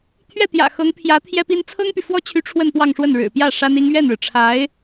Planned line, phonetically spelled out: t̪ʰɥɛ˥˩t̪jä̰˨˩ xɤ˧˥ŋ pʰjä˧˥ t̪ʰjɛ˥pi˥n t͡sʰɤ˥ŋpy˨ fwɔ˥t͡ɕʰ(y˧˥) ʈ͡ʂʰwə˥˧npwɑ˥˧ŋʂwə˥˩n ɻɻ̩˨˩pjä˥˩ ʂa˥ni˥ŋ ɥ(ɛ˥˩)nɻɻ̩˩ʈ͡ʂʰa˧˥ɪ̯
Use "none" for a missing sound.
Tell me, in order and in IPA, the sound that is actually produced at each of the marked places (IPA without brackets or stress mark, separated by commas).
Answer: y˧˥, ɛ˥˩